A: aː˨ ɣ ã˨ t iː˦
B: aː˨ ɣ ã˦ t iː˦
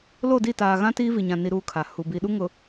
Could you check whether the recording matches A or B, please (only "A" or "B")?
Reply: B